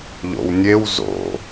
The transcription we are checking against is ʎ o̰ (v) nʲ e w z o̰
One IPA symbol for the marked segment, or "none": w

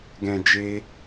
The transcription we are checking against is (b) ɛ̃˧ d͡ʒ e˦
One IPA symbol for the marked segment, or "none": ɡ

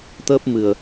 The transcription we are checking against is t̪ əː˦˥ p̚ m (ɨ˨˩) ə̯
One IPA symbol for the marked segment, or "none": ɨ˨˩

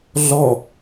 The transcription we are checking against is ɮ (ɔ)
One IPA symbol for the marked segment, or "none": ɔ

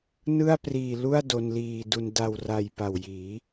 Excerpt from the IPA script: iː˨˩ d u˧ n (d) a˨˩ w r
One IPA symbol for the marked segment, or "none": d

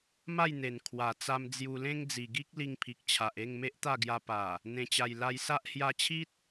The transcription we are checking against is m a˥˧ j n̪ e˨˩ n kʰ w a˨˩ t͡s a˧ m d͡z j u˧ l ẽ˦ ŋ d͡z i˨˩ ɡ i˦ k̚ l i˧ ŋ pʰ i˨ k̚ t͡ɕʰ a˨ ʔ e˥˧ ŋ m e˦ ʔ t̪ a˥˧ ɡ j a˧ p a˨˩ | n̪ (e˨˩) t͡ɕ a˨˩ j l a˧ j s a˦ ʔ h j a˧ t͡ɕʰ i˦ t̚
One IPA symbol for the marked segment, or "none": ẽ˨˩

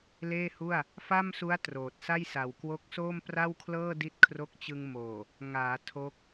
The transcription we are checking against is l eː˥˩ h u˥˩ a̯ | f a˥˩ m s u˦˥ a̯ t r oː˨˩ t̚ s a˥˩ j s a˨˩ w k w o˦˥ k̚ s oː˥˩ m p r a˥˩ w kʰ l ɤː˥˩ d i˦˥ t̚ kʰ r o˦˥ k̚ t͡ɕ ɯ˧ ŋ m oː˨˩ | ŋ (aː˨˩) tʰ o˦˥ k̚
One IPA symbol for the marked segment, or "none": aː˩˦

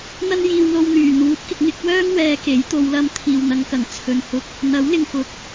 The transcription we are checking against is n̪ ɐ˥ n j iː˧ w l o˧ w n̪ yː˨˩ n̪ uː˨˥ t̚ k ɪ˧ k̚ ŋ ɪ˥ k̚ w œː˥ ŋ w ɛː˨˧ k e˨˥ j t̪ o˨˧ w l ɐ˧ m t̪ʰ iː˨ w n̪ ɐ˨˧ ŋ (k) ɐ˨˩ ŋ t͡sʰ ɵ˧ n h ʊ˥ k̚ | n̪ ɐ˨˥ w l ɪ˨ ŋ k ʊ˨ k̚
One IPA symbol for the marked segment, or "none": k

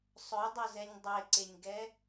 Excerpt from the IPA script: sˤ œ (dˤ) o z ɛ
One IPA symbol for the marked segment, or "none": dˤ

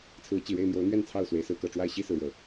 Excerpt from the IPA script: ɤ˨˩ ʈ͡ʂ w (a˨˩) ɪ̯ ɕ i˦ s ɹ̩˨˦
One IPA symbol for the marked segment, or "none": a˥˨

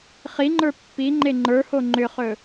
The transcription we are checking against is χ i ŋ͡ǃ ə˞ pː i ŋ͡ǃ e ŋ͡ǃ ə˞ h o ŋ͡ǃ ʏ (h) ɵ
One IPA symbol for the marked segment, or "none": χ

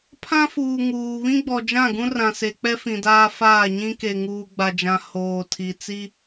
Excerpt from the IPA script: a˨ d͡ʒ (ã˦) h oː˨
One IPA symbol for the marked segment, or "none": ã˨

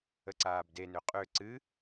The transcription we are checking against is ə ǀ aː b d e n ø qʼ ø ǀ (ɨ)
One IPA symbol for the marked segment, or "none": ɨ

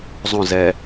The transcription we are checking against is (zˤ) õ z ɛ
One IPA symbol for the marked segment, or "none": zˤ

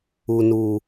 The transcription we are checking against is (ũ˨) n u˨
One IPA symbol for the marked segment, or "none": u˨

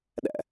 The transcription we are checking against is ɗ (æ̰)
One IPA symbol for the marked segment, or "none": æ̰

